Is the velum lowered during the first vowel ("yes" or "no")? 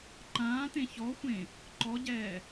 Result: yes